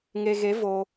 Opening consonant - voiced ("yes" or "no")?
yes